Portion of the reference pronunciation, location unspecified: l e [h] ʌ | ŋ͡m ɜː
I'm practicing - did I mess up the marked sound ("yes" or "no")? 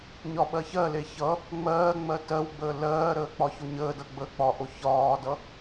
yes